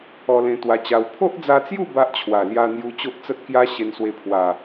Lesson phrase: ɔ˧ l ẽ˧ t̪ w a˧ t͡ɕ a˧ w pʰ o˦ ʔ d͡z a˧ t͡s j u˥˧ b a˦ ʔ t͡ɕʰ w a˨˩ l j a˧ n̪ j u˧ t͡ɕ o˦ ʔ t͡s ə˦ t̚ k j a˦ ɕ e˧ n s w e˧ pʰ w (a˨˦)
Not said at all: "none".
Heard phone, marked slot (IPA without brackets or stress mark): a˨˩